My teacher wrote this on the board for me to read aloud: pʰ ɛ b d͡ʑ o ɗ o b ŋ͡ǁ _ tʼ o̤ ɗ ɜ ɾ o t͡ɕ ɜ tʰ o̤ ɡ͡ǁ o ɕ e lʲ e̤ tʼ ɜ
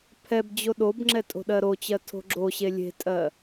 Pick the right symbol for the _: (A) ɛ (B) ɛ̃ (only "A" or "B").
A